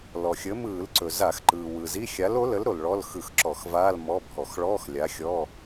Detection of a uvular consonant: absent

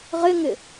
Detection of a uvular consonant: present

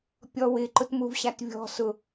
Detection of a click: present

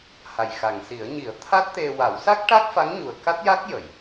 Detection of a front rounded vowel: absent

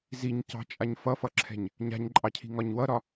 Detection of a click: present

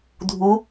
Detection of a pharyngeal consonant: absent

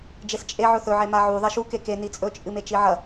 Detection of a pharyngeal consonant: present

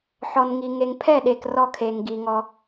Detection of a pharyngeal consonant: present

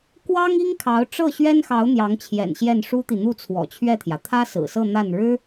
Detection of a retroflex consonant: present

